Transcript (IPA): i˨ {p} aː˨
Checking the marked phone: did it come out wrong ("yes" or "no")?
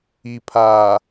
yes